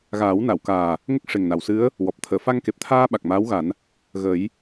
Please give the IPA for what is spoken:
ɣaː˨˩˦wna˨˩˨wkaː˨˩ | ŋə˦˥k̚ʂe˨˩ŋna˨˩˨wsɨ˧˥ə̯ | wɔ˨˩p̚ t̪ʰəː˨˩˨fa˧ŋke˨˩p̚t̪ʰaː˧ ɓa˨˩k̚maː˧˥wɣa˨˩˦n | ɣə˨˩˦j

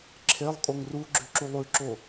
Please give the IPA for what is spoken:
ǁʰelˠkʼoŋ ruɡ͡ǁʉǁulˠ ʉǁo

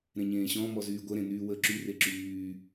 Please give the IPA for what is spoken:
ɾẽɲẽːɕɔ̃mɔ zyːɡʷəɾẽ nyːwəːǁyre ǁyː

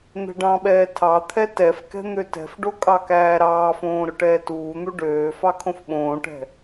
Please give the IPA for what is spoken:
n̪ɛ̤ɖɑ̃ɓɛː tʰɑ t̪ʰɛtɛfkɛ̤ n̪øtɛ̤fɖo kʼɑkæːɾɑːfõː ɾʊʈɛːtuːn̪u ɖøː fɑkʰõfɓõːʈɛ̤

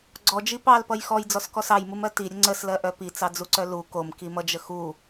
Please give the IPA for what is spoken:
ɡ͡ǀɔd͡ʒi pɑlpʌj xɔjd͡zɔskɔs ɑjmumɜ tiɾʲə ŋ͡ǀəslɜʔœ pit͡sɑd͡zuǀœ lu komkimʌd͡ʒə xu

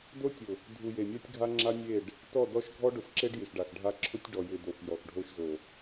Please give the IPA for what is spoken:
do˦tʲʊ˨ | dʱu˨je˨mʲa˦tʲɡʱa˦ ŋ͡ǁa˦mʲe˦˨ɖ | tɔ˦˨dɔ˦ʃ ɡʱɔ˦ɖʊ˨fǁe˦ɖ jɪ˨ʃɖa˨xɖʱa˦ ǁʰʊ˦tʲɖɔ˨ jɪ˨ do˨f jɔ˨xɖʱo˦ʃzo˨

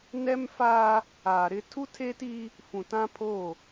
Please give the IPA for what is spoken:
nɛ˦mfaː˦ | aː˨ɾɪ˦ tʰu˦tʰe˦ti˦ | fũ˨tã˦pʰo˦˨

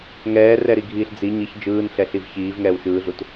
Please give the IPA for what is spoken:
ŋɛːrɛɾiɡʱiːɬ d͡zi ɲiç d͡ʒɯːnɬɛɬiv çiːvŋɛːw ʃɯːɮut

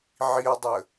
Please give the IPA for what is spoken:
ʕiʊ̯dˤə

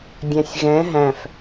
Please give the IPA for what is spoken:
dʲæ̃sʲɣɛ̃ ɦæ̃f

